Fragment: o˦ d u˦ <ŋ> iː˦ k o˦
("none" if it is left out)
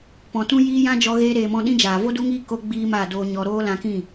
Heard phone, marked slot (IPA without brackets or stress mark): ŋ